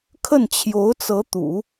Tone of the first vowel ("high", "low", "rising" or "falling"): falling